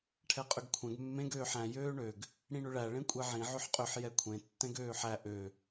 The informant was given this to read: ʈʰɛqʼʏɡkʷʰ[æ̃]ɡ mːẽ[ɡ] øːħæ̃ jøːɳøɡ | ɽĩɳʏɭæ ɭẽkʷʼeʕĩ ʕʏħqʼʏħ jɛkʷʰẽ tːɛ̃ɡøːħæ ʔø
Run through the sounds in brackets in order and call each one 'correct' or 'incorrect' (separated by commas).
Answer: incorrect, correct